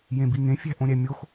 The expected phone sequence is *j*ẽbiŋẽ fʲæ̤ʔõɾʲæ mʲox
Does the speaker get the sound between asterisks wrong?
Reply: no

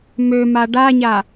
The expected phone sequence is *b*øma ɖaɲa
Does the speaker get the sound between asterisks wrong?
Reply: yes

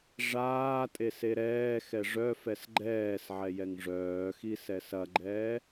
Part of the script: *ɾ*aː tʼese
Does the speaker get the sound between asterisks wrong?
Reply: yes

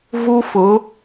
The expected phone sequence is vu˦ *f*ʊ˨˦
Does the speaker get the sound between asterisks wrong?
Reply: no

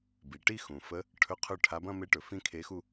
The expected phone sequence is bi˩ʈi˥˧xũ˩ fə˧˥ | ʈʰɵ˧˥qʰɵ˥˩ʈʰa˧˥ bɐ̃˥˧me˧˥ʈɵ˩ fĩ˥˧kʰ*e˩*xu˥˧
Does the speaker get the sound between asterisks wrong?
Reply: yes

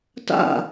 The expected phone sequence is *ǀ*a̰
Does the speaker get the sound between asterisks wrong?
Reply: yes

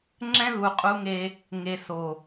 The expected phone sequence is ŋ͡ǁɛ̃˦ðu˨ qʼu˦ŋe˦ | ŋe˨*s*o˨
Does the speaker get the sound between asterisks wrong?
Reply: no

